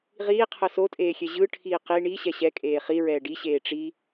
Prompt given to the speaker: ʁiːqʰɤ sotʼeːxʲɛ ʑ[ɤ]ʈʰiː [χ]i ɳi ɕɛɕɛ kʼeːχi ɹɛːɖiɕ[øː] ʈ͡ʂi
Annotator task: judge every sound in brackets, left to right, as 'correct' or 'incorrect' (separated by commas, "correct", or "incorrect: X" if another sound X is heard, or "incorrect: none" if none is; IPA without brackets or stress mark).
incorrect: ɯ, incorrect: q, incorrect: eː